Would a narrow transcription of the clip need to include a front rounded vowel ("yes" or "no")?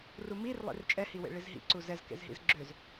yes